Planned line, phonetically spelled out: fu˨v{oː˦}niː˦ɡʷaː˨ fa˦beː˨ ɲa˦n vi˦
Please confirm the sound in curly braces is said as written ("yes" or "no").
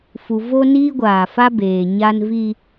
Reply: no